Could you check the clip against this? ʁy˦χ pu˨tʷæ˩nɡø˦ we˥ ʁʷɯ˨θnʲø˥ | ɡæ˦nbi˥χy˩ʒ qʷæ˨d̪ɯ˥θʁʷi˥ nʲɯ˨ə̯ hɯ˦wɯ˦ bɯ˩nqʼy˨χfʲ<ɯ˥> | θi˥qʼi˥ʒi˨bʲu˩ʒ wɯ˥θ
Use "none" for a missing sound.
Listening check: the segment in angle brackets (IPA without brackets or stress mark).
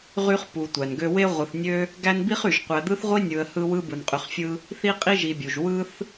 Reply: ɯ˦